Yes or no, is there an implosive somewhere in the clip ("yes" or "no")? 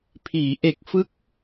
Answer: no